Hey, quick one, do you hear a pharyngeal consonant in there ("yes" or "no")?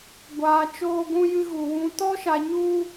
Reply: no